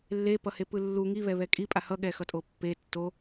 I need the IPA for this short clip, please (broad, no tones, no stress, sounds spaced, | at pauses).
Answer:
lː e p ʌ h e p ɯ lː u ŋ i β ɛ β ɛ kʼ i pʼ a h ʌ ɠ ɛ x ʌ tʼ o pː e tː o